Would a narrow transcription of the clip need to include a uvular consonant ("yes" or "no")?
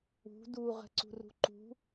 yes